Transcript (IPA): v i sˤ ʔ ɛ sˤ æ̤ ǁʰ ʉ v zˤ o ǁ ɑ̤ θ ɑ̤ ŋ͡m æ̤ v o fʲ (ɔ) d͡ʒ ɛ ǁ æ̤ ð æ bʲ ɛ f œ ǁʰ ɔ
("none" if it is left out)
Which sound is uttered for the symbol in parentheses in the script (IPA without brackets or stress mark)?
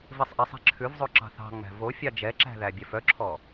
ɑ